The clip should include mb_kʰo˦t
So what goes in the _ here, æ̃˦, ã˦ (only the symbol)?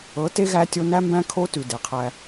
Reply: æ̃˦